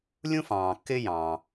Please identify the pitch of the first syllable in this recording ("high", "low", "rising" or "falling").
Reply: high